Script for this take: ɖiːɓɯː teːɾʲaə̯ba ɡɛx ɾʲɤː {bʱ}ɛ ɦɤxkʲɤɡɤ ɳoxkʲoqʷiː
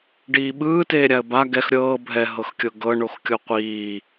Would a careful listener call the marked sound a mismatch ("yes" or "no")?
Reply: no